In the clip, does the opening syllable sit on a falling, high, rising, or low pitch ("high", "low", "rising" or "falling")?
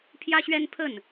high